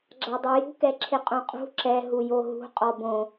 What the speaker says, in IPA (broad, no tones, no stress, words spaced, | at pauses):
ɡ͡ǁadˤujṳ kɛǁʰɪqʼõqʼṳ ǁɛ ɦujoɦṳ qʼɔbõ